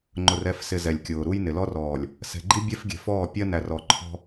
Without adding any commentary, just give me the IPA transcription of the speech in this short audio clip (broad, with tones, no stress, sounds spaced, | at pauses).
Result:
ŋ͡ǃ ʊ˨ r ɛ˦˨ f s ɪ˨ z ɛ˨ lʲ kʲ ʊː˨ ɾ u˦ j n ɪ˨ l ɔ˦ r ɔː˨ lʲ | s ɛ̤˨ ɡ͡ǃ i˦ bʲ ɛ˦ f ɡʲ ɛ̤˨ f ɔː˦˨ pʲ ɜ˦ n æ˨ r ɔ˨ ǃʰ ɔ̤˦